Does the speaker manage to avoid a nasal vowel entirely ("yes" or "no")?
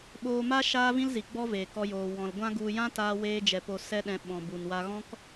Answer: no